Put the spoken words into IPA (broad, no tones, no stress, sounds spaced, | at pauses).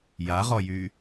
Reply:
j a ʁ ɔ j y